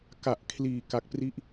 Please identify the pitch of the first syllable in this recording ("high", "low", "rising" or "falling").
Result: low